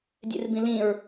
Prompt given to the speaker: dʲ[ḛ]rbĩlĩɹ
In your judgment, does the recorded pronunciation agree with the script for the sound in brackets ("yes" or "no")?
yes